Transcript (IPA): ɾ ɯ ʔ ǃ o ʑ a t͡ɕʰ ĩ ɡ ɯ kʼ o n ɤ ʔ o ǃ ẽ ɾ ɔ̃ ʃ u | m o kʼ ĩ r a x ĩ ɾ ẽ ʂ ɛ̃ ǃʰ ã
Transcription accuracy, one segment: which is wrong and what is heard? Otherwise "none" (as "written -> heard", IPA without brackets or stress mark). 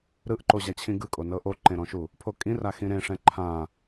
m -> pʰ